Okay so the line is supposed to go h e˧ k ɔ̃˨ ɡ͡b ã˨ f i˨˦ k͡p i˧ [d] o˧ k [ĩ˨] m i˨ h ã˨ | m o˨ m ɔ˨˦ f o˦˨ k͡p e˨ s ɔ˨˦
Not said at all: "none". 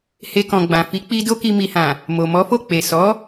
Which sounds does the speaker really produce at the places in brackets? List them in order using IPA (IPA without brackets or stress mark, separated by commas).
d, i˨